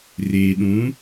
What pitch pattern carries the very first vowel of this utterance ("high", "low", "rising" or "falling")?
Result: low